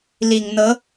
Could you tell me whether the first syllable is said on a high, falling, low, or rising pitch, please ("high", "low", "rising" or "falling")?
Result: low